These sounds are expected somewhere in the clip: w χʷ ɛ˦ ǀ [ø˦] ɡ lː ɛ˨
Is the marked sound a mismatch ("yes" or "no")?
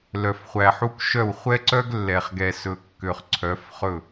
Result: yes